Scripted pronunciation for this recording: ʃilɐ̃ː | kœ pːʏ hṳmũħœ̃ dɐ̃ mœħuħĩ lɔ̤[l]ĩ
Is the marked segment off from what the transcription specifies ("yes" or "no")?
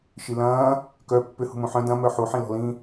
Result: no